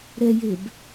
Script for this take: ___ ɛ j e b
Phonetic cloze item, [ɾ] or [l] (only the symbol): ɾ